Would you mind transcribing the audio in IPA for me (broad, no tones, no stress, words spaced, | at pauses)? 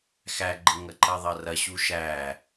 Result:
xæɡ͡ǃəŋɐǃɐ ðˤɐrɐ ɕuʃæ